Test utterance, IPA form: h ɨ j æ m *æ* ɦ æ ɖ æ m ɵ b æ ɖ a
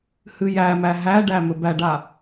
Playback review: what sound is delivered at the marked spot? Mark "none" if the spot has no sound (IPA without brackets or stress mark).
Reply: æ